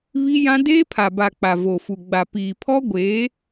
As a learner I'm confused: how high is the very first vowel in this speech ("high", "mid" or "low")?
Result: high